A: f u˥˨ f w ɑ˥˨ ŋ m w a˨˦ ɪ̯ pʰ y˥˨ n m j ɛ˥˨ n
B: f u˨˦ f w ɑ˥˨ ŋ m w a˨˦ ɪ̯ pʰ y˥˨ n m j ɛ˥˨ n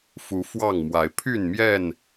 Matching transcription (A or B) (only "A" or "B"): B